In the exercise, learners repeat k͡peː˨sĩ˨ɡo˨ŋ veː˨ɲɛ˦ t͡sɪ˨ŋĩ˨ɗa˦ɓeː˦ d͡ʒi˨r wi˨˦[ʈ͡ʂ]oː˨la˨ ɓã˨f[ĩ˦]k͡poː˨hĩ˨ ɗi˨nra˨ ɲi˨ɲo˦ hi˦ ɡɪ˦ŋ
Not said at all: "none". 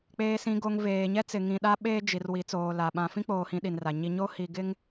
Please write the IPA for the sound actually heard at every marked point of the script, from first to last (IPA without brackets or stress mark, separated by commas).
t͡s, ĩ˦